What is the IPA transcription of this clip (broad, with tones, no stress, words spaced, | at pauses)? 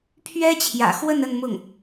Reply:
pʰɥɛ˥t͡ɕʰjä̰˨˩xwə˥˧n ə˥˧nmʊ˥˩ŋ